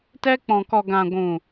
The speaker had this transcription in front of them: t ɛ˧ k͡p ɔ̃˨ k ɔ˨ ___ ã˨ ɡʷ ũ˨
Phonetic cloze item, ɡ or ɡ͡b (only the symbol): ɡ